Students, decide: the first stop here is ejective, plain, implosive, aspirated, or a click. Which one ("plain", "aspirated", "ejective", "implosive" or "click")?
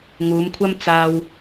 aspirated